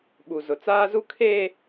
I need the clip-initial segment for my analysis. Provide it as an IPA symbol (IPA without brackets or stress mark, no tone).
ɓ